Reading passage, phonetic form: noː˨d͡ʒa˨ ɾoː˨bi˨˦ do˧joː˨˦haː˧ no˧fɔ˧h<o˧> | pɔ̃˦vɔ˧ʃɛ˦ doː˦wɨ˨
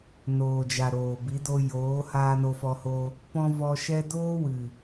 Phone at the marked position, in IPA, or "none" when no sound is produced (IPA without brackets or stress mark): o˧